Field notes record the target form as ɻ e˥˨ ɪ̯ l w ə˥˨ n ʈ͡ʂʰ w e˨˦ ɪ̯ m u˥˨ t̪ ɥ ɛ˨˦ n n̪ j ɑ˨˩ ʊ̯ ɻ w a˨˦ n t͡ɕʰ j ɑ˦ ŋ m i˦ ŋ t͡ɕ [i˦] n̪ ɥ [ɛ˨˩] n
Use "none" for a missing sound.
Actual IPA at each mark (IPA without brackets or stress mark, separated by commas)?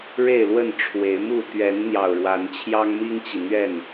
i˨, ɛ˥˨